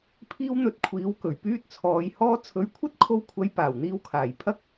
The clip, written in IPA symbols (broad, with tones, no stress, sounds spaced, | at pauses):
pʰ iː˥ w n̪ ɵ˧ t̚ kʷʰ iː˨˥ w k ɵ˨˩ ɥ p yː˥ t̚ t͡sʰ ɔː˨˧ j h ɔː˥ t͡sʰ ɵ˨˧ ɥ kʷʰ ɐ˥ t̚ kʰ o˧ w kʷʰ ɐ˨˧ j p aː˨˩ w n̪ iː˧ w kʰ aː˨˩ j pʰ ɐ˥ k̚